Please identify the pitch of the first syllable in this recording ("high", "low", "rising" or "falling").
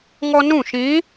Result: high